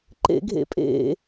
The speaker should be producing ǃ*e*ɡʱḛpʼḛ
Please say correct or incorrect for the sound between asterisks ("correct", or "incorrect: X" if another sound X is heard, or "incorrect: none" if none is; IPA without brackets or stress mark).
incorrect: ḛ